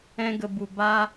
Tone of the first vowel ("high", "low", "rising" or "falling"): high